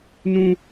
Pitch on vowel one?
high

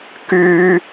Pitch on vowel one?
high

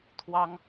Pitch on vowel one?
high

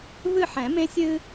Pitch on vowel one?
falling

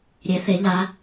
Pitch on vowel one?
rising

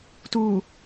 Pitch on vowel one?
low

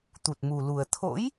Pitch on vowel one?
low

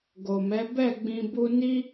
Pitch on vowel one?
low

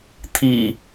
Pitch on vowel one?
low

